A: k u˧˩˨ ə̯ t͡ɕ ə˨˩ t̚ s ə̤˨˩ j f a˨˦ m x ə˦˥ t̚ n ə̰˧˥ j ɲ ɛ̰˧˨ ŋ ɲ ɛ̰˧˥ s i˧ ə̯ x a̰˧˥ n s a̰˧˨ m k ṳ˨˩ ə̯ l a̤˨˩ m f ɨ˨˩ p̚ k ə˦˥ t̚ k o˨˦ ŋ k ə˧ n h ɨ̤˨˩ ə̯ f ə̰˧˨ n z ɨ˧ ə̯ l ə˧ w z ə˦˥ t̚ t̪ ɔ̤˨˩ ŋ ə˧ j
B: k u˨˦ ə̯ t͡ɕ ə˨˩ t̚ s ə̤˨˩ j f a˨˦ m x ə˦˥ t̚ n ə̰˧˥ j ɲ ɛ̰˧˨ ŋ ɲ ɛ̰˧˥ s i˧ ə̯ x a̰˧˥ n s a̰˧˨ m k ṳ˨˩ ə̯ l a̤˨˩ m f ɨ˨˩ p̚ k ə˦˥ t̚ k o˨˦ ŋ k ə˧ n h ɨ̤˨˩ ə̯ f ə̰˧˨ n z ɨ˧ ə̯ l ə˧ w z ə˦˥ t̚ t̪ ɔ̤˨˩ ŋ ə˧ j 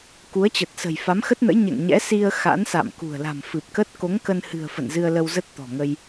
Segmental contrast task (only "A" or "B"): B